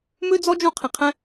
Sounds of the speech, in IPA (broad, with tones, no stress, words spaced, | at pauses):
mø˥d͡zɔ˥ d͡ʒũ˥qʰĩ˧qʰɛ̃˥